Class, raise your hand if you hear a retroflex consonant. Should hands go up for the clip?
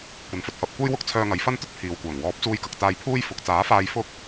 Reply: no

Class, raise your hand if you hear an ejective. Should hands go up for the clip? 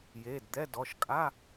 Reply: yes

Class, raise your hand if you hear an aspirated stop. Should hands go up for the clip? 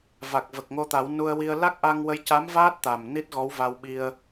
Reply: no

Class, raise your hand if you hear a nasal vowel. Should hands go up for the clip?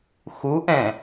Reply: yes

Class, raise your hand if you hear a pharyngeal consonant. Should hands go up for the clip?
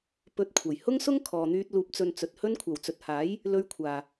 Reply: no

